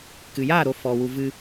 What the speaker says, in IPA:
k ɨ˨ j aː˦˨ ɾ o˧ f ɔ˨ w u˨ v ɨ˧

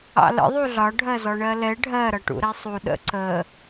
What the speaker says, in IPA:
ɑ̰ l ə̰ ðˤ u ɮ ɒ ɖʱ ɜ z ɔ ɳ ɜ l ɛ ɖʱ ɜ ɾ ʌ ʈ ṵ ɾ ɛ sˤ u ɗ ə̰ ǀ ə

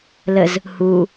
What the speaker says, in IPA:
l ə z | h u

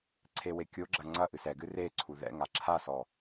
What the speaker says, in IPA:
ǀʰ e w e kʲ o ɡ͡ǁ ɐ ŋ͡ǀ ɐ ʔ ɨ s ɛ ɡ ɨ r e ǀʰ u ð ɛ̰ ŋ a ǁʰ a s ɔ

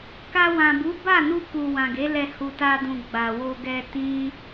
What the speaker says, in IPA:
k a˧ w ã˨ b u˨˦ b a˦˨ n u˧ k u˨ w ã˨ ɡ e˨˦ l ɛ˧ h u˨ t a˧ d ũ˨ ɡ͡b a˨ w o˧ ɡ ɛ˧ t ĩ˦

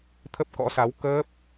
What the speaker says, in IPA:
t̪ʰ ə˦˥ p̚ k ɔ̰˧˥ s a˨˦ w k əː˦˥ p̚

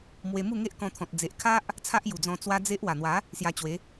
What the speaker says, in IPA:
m w e˧ m u˥˧ ŋ e˦ ʔ k ɔ̃˧ t̪ʰ ɔ̃˨ t̚ d͡z e˨ ʔ kʰ a˦ ʔ | t͡sʰ a˦ ʔ j u˨˩ d͡z ɔ̃˧ t͡s w a˦ d͡z e˦ ʔ w a˨˩ n̪ w a˨˦ | s j a˧ t͡ɕ w e˨˦

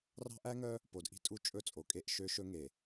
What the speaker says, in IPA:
r ɑ̤˦ ʔ æ˦ ŋ œ˦ | p o˨ d ʔ i̤˦ tʼ u˦˨ t͡ʃʼ ɵ˦˨ t͡sʼ o˨ kʼ e˦˨ ʔ ʃ ø˦ ʃ ɵ˦ ŋ e˨

